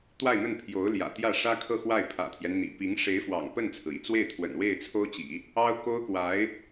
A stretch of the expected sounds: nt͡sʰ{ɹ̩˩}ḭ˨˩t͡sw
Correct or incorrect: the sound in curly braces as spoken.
correct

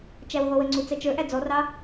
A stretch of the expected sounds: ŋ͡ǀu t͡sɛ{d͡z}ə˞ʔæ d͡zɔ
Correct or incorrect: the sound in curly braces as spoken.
incorrect: t͡ʃ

